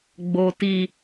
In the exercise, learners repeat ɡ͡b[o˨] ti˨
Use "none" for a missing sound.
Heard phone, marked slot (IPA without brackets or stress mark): o˨